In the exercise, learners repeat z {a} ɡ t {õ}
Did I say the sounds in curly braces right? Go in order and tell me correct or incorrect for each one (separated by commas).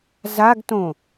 correct, correct